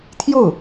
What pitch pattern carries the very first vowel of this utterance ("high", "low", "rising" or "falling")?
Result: falling